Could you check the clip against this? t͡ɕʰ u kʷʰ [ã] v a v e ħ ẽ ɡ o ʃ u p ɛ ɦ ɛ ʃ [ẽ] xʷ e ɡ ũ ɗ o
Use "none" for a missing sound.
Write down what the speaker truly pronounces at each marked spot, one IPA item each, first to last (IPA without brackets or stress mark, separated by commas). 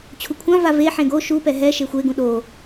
ã, e